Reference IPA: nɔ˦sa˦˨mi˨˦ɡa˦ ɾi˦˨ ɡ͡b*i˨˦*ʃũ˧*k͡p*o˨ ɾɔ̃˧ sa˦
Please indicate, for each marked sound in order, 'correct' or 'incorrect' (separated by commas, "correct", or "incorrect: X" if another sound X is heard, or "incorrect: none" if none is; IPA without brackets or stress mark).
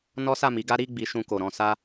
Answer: correct, incorrect: k